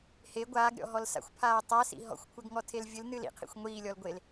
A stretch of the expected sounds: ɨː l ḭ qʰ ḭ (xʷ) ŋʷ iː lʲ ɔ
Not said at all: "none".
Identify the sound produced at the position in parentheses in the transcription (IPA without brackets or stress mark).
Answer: xʷ